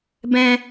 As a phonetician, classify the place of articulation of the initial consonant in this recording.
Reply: labial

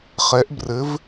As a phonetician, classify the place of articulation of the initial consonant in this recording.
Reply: uvular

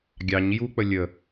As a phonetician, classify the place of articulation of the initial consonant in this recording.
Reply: velar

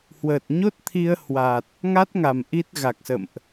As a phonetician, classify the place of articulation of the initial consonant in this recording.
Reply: glottal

